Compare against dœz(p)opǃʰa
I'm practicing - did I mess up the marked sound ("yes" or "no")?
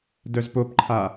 no